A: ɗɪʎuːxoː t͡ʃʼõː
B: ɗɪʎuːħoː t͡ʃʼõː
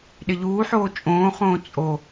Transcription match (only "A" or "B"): B